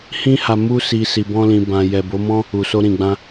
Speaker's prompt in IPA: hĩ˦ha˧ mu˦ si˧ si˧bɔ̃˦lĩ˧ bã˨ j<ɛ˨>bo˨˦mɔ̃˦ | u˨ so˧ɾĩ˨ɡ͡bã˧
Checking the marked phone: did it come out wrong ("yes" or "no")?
no